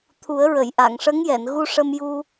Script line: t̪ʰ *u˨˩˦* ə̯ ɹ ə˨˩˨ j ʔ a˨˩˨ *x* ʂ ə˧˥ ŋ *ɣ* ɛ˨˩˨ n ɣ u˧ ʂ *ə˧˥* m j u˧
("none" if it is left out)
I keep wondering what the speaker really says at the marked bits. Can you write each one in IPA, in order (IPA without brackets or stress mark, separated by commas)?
u˨˩˦, ŋ, j, ə˧